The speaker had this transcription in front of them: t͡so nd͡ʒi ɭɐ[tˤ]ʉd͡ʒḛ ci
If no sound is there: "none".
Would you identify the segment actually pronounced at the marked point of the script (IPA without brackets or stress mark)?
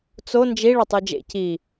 tˤ